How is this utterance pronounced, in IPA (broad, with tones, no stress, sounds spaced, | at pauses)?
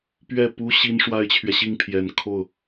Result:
p ɥ ɛ˥˩ p u˥ ɕ i˥ n ʂ w a˥ ɪ̯ t͡ɕʰ ɥ ɛ˨ ɕ i˥˩ ŋ pʰ j ɛ˨˩ n kʰ o˥˩ ʊ̯